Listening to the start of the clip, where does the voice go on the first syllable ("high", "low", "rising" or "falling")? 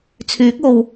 rising